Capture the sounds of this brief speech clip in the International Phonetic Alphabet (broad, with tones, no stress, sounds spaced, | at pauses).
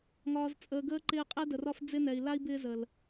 ŋ ɒː˨ z t͡sʼ əː˨ ɡ əː˧ ǃ ɪː˧ qʼ ɛ˦ d ə˨ r ɒ˦ f d͡z ɪ˦ n ɛ˨ i̯ l a˦ i̯ b ɪː˦ z ə˨ l